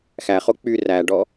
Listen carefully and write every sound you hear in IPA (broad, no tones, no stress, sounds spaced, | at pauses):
x æ χ o k͡p y r æ ɖ ɔ